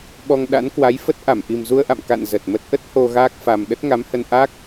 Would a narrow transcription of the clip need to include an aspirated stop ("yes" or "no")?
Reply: no